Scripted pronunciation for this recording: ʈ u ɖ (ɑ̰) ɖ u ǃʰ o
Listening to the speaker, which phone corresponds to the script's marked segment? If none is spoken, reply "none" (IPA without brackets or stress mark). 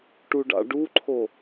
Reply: ɑ̰